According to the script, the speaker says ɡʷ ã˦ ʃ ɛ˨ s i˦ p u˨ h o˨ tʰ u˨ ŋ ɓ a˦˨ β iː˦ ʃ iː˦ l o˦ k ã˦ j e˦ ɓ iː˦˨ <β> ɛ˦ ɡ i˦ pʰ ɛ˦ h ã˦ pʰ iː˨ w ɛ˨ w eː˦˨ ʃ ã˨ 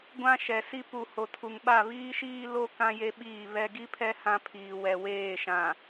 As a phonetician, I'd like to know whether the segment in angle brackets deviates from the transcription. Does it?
no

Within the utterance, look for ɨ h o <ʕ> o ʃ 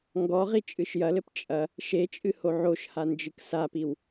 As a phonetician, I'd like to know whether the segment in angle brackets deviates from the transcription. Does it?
no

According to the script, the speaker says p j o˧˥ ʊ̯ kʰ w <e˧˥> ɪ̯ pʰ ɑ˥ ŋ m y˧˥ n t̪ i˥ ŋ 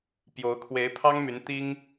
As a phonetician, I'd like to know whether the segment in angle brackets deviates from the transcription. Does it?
no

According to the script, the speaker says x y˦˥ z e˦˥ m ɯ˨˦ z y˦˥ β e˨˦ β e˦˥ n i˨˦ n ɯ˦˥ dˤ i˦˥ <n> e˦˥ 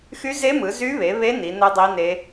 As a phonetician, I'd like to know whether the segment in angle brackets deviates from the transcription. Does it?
no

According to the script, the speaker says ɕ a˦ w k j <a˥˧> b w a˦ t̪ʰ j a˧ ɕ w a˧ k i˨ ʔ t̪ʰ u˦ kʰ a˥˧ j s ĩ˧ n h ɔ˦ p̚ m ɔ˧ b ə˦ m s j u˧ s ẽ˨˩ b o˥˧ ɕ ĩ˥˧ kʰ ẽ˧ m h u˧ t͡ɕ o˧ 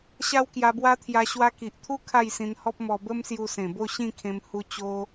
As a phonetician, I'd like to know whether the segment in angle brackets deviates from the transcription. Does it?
yes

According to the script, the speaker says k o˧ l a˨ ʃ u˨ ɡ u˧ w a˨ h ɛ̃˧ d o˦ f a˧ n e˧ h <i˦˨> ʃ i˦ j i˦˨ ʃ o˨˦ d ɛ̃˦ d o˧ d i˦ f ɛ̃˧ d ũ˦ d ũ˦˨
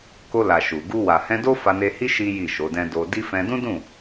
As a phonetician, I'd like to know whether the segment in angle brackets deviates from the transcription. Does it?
yes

